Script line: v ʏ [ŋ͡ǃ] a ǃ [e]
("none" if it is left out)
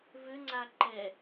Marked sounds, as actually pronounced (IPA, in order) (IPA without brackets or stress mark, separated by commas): ŋ͡ǀ, ɛ